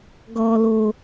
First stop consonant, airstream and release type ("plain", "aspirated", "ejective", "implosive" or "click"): plain